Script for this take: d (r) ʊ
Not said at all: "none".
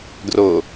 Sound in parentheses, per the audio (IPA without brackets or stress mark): r